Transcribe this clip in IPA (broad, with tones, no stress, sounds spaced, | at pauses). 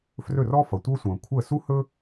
f r ɵ˥˩ r ɔ˥ f ʌ˩ tʷ ɤ˥ sʷ ə̃ː˩ kʷʰ ə˥˩ s u˥ h ɵ˥